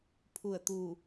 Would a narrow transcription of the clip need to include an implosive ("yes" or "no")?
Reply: no